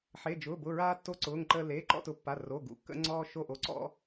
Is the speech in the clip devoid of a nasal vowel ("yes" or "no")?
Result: yes